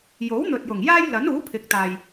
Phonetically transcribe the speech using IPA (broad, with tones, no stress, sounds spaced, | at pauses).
j o˨˥ w n̪ ɵ˨ t̚ j ʊ˨˩ ŋ j aː˥ j l ɐ˨˥ n uː˨˥ pʰ ɪ˨˥ k̚ t̪ aː˨ j